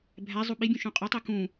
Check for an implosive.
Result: present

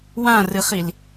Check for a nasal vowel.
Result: present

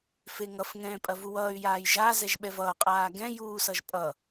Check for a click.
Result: absent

